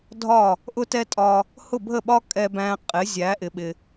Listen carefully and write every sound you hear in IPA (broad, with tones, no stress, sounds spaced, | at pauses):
dʱ ɒ˥˩ | ʔ ʊ˥ t ɛ˥ tʼ ɒ˧ | h ʊ˥˩ bʱ ə˥˩ ɓ ɒ˥ kʼ ɛ˧ b æ̃˧ qʼ ɪ˩˥ zʲ æ˩˥ ʔ ɪ˩ ɓ ɪ˩